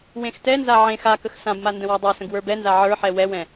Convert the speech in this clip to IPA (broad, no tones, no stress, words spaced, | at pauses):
wẽxtɛnza ʕẽ xakəx sãbma ndə̃wadˤə˞sə̃ɡ wə˞bɛnza ʕə˞ħɛ wɛwɛ̃